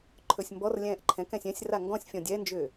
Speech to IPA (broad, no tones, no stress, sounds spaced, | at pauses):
ǃʰ ɵ sʲ m b ɔ r lʲ ɛ̃ː ʔ ǃʰ ɛ̃ k ɛ̃ sʲ ɛ̃ sʲ r a ŋ ɡ ɔ̃ sʲ fʲ ɔ̃ dʲ ɛ n d͡ʒ ʏː